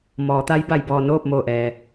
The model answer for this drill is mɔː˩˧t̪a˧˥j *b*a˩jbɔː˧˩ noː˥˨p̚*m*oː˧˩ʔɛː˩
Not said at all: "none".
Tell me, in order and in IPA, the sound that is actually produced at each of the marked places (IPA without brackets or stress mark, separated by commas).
b, m